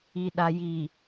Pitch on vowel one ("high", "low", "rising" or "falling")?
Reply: low